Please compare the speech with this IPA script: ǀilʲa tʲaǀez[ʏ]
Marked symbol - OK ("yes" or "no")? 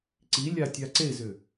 yes